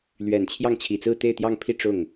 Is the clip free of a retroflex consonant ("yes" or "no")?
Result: no